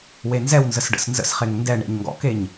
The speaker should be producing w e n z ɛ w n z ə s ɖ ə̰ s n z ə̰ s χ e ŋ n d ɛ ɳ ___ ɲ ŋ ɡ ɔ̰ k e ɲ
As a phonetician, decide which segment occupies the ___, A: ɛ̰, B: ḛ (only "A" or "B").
B